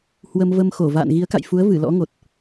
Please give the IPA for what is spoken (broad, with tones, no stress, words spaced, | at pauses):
hwə˧m və˧mxo˧˩ va̰ː˧˨n ɣi˨˦ə̯ka̰˧˨jfu˨˦ə̯ vɨ˧˩lɔ̰˧˥ŋo˨˩t̚